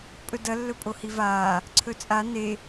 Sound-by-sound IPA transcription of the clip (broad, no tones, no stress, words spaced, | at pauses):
pʼɵdɐ lːɵpʼohivaː | ǀʰɵt͡sʼa ne